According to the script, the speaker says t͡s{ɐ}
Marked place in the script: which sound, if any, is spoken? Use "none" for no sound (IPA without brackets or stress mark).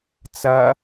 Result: ɐ